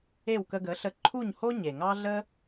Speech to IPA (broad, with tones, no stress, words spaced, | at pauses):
e˥˩wkə˧ɡə˩˥ɬə˧ ǃʰu˥˩ɲho˥ ɲe˩ ŋɑ˥ ɮə˥